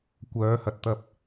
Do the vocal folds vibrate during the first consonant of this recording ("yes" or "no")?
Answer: no